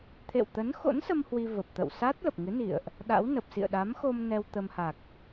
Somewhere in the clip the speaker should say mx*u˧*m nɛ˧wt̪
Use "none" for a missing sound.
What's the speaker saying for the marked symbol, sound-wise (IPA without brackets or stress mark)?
o˧